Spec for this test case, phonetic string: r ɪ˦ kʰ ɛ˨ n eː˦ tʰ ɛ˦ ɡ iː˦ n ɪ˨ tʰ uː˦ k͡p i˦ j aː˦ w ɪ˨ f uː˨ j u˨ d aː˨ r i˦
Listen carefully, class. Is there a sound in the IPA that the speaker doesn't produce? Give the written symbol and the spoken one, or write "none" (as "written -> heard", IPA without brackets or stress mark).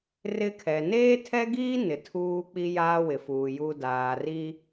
none